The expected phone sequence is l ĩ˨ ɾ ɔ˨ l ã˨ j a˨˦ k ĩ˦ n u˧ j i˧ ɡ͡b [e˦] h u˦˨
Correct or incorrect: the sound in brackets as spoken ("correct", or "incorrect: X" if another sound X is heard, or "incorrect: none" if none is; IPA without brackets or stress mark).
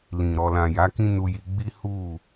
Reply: incorrect: i˦